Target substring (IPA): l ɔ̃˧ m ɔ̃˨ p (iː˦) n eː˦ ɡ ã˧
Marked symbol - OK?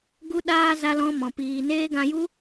no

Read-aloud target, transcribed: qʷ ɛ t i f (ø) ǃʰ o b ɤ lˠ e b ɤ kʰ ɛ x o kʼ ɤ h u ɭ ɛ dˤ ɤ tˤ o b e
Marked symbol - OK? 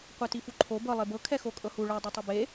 no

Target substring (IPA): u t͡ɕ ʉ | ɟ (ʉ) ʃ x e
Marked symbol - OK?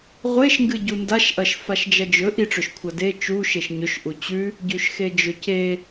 yes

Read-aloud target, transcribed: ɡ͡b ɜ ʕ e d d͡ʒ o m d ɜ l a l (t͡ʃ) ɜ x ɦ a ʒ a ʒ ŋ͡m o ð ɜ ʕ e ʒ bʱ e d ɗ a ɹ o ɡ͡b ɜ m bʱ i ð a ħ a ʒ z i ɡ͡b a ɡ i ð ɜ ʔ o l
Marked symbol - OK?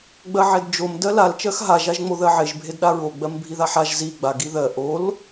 yes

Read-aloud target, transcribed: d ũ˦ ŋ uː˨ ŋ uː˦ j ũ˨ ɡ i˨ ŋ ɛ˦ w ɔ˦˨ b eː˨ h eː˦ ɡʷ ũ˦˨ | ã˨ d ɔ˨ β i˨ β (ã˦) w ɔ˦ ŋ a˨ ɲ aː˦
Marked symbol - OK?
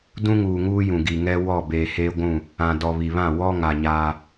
no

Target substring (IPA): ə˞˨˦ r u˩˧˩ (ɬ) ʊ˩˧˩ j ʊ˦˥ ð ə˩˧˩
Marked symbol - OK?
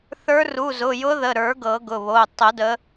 no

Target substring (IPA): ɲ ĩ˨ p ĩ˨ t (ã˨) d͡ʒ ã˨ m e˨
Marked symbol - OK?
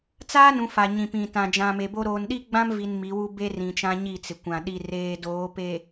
yes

